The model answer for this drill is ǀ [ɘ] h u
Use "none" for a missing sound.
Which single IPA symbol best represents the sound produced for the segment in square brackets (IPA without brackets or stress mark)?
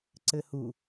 ɘ